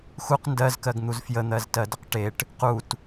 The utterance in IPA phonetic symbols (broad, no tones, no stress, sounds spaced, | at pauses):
x u q n d ɜ z k ɜ ɡ n̪ u z f j ə n̪ ɜ z t ɜ d ə q ʈ e ʈ | q u t